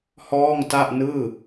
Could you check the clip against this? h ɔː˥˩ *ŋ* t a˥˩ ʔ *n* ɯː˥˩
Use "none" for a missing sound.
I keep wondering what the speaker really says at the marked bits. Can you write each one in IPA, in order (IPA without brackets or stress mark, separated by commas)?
ŋ, n